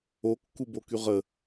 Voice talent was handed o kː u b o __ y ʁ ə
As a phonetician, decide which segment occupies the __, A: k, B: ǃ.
A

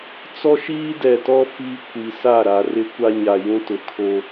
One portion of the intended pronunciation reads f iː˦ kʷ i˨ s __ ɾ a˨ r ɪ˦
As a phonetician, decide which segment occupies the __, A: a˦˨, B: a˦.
A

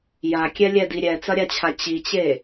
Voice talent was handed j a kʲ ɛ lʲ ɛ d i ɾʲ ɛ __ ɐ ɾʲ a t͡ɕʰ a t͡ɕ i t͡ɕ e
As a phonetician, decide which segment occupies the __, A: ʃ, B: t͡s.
B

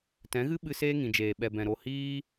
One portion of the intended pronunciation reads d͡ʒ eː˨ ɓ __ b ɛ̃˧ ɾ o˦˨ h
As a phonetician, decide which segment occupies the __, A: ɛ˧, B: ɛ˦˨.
A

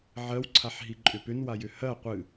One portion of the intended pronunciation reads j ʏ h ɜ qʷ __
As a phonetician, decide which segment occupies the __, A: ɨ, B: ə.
A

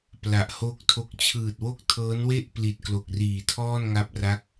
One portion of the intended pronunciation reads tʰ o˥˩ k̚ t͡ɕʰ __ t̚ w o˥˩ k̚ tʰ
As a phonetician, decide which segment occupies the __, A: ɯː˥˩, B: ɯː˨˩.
B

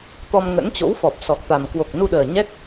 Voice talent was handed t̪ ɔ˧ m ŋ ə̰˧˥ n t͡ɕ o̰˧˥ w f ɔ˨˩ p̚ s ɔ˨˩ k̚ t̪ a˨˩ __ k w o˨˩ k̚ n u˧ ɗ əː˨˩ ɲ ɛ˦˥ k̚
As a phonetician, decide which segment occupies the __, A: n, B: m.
B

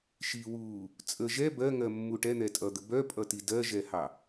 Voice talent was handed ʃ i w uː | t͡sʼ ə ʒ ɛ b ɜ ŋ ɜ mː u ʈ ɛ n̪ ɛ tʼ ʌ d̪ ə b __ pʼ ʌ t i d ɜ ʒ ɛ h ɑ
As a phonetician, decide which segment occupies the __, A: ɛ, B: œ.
B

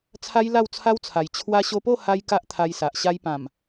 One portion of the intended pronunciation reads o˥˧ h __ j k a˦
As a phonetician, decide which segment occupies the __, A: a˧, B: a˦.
B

